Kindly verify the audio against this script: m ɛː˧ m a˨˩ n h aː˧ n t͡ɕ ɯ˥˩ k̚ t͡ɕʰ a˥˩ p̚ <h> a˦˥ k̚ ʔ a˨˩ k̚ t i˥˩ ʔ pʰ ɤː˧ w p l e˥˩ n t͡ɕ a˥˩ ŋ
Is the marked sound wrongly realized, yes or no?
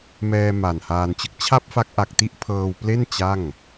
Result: yes